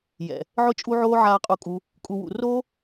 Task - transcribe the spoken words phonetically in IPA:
j ɛ̰˨ | ʕ ʊ˧ t͡ʃʼ u˧ ʕ oː˧ ʕ aː˨ qʼ u˧ kʼ u˧ | kʼ u˨ w ṵ˨ r o˦

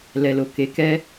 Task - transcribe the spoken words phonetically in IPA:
l ɛ˨ l o˨ k e˨˦ k ɛ˦

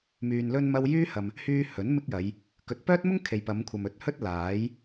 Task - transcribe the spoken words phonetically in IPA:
m yː˧ n l ɵ˥ n m ɐ˥ w j yː˥ h ɐ˨ m | h yː˥ h ɵ˨˥ n m ɪ˥ k̚ j ɐ˨˧ j | k ɵ˨˥ t̚ p œː˥ t̚ m ʊ˥ ŋ kʰ e˨ j p ɐ˨˧ m kʷʰ ɐ˨ m ɵ˨˥ t̚ h ɵ˥ t̚ l aː˨˥ j

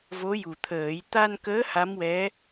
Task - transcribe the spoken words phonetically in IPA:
v o˧˥ j u˨˩ t̪ʰ əː˨˩˦ j t̪ a˧ n k əː˧˥ h a˧˥ m w ɛ˧˥

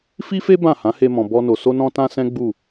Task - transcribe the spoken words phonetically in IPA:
f i˦ f e˦ b ã˦˨ h ã˨˦ h e˧ m ɔ̃˨ b ɔ˧ n o˨ s o˧ n ɔ̃˧ t ã˧ s ɛ̃˦ ɡ͡b u˦˨

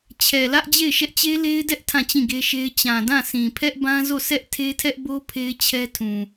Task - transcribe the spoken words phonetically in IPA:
t͡ɕʰ ɛ˨ l ä˦ ʔ d͡ʑ e˦˨ ɪ̯ ʃ ɛ˦ ʔ t͡ɕ e˦ l e˦ ɪ̯ d ɛ˦ ʔ tʰ ã˦˨ t͡ɕ ĩ˦˨ ɡ e˦ ʃ e˦ ɪ̯ t͡ɕ ã˨ d ã˦˨ sʰ ĩ˨ pʰ ɛ˦ ʔ b ã˦ z o˦˨ s ɛ˦ ʔ tʰ e˦ tʰ ɛ˦ ʔ b o˦ pʰ e˦ ɪ̯ t͡ɕʰ ɛ˦ tʰ ũ˨

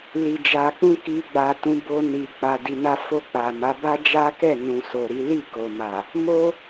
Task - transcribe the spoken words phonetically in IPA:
l i˨ d͡ʒ a˨ k͡p ũ˧ k i˧ ɡ͡b a˨ t ũ˨˦ b o˧ n i˨ k͡p a˨ d i˨ n a˧ f o˧ k͡p a˨ m a˨˦ b a˦ d͡ʒ a˦ k ɛ˦˨ n ũ˨ s o˨ ɾ i˨˦ l i˦˨ k o˨ m a˨ | m o˦

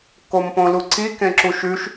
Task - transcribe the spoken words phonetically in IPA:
k o m p õ l u ǀ i k ẽ ǁ u ʃ ʉ ʃ

